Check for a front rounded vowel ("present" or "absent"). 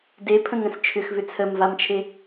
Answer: present